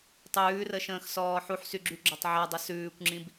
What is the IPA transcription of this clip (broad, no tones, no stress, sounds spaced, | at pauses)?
tˤ ʉː r ə ʃ ə̃ː x s ɔː ħ u ħ s y ɡ͡ǁ y ɡ͡ǁ ɔ tˤ ʕ a dˤ ə s ʉː kʷ ŋ͡ǁ ĩ b